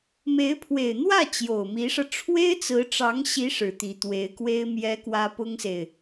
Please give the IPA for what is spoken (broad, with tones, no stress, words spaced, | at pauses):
me˧˥ɪ̯pʰwe˨˩ɪ̯n̪wä˥˩ t͡ɕjo˨˩ʊ̯mi˧˥ʂɤ˧ ʈ͡ʂʰwe˥ɪ̯t͡sɹ̩˧˥ʈ͡ʂɑ˧˥ŋɕi˧˥ ʂɻ̩˨˩t̪i˧˥t̪we˧˥ɪ̯kwe˥ɪ̯ mjɛ˥kwä˥ pʊ˥ŋse˨ɪ̯